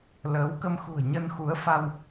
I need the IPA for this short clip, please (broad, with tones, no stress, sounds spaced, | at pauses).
l əː˨˦ w k ə˧ m x ṳ˨˩ ə̯ ɲ ə˧ n x u˨˦ ə̯ f a˧ w